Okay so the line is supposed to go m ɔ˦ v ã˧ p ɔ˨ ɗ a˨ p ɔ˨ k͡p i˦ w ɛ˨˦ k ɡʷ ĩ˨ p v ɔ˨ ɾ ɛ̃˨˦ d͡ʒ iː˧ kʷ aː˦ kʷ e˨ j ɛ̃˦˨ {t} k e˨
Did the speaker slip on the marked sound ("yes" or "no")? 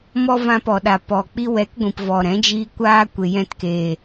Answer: no